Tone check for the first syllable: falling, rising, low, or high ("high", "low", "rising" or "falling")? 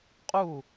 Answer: falling